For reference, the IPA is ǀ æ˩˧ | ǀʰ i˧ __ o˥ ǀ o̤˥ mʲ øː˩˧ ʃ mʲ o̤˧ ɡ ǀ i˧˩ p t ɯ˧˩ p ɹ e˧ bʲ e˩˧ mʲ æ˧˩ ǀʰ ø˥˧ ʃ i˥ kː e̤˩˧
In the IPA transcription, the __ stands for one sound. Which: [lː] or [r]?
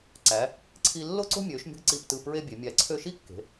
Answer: lː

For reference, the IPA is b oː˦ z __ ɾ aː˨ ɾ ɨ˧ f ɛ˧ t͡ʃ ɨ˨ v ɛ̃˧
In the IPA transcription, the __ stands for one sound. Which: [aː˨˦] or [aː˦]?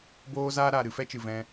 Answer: aː˦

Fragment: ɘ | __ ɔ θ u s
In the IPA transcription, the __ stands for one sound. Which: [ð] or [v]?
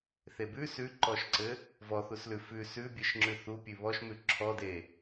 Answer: v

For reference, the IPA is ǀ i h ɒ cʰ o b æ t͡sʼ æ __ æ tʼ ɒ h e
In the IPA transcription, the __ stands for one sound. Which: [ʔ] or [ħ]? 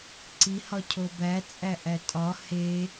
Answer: ʔ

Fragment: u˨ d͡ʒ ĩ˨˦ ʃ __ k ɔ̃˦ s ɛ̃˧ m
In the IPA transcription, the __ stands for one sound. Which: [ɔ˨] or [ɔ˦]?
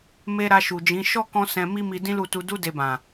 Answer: ɔ˦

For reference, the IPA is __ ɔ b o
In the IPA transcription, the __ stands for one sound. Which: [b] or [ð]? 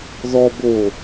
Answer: ð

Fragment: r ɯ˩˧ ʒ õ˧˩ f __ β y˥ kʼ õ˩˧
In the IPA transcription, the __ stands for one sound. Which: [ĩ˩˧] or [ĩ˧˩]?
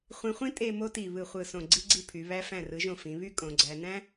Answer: ĩ˩˧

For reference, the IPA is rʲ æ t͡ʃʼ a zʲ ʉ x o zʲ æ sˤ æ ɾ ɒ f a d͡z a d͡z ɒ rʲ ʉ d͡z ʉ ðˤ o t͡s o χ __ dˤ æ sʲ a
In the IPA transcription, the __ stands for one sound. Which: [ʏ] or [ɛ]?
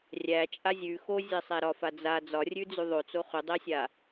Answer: ʏ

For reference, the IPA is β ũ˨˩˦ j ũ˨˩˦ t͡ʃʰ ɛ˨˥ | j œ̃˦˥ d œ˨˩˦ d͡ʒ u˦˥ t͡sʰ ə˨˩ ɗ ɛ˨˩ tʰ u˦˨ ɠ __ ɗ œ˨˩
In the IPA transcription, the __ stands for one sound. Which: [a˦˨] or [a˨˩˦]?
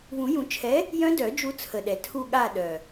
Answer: a˦˨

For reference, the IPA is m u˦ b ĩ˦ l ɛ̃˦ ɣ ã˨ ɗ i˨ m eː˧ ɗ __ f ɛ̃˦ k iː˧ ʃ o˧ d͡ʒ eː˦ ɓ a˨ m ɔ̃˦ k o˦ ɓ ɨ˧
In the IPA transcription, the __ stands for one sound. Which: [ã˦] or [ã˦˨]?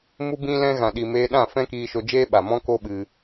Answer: ã˦˨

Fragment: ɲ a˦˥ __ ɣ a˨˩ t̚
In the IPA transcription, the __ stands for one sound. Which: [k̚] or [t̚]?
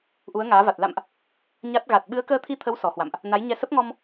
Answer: t̚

